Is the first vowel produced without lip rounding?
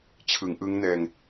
yes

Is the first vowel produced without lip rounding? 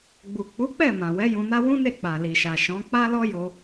no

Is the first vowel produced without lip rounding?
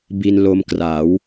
yes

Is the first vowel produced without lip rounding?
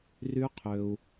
no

